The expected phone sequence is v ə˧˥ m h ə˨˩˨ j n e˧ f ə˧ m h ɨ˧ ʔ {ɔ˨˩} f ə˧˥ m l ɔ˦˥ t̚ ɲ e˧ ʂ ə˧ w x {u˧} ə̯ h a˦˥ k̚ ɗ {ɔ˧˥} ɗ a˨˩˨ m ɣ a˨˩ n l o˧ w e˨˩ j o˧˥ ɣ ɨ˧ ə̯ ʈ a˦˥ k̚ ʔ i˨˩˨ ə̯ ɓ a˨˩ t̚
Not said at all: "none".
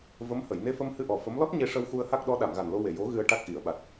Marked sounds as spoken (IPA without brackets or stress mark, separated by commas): ɔ˨˩, u˧, ɔ˧˥